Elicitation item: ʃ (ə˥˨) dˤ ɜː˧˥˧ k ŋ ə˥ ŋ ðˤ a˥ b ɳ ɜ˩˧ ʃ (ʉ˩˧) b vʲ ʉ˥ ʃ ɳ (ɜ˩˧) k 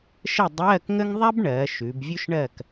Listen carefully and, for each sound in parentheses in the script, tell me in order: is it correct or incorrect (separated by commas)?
correct, correct, incorrect